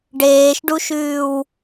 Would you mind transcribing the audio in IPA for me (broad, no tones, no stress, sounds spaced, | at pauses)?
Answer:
ɖ eː ʃ ɖ u ʃ ʉː w